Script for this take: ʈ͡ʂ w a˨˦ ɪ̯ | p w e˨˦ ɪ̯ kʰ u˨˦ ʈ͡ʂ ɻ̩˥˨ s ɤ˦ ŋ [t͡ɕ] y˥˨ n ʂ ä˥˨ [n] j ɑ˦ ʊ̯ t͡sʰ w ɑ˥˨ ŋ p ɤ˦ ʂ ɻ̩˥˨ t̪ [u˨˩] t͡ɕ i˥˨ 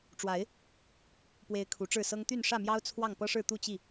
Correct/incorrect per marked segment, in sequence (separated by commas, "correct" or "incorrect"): incorrect, incorrect, incorrect